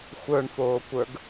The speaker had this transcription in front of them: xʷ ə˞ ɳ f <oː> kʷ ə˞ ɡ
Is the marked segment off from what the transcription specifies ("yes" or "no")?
no